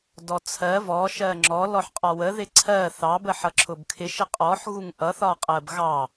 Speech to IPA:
d ɔ t͡sʰ ɜ v ɔ ʃ ɜ ŋ͡ǁ ɔ l ɔ ħ qʼ ɒ w ə ð ɪ ǀʰ ɜ θ ɑ b ə ħ ʌ ǁʰ ʊ b kʰ ɪ ʃ ə qʼ ɔ ħ ɣ u ŋ ʔ ʌ θ ɒ qʼ ɜ b ɣ ɑ

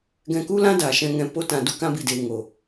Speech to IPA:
ɡ ɛ̃˧ k u˦ l ã˦ d a˨ ʃ ɛ̃˧ ŋ ɛ̃˧ p o˧ t ã˨ d u˧ k ã˧ b i˨ d eː˨ ŋ o˨

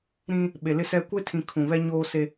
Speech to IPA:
ɾ ĩ˦ | ɓ e˨ l ɪ˦ s ɛ˦ kʷ e˦ tʰ ĩ˨ kʰ ũ˨ β ɛ˦ ɲ oː˦ s e˦

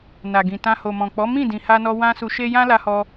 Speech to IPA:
n a˨ ɡ ĩ˨ t ã˧ h o˨ m ɔ̃˨ k͡p ɔ˨˦ m ĩ˦˨ d ĩ˧ h a˦ n ɔ˦ w ã˦ s u˧ ʃ e˦ j ã˦ l a˧ h ɔ˧

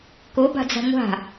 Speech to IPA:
k o b a̤ d͡z a̤ ŋʷ a̤

